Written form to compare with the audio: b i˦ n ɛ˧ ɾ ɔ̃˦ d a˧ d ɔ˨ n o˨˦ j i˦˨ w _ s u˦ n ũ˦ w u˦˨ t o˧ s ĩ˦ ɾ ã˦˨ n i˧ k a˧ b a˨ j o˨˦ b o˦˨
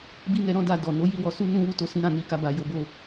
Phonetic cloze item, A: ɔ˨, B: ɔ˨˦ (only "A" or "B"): B